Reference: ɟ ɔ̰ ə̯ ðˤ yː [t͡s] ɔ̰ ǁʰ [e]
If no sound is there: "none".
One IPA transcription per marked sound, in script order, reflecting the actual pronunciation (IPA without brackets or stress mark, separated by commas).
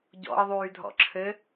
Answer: dʱ, ɘ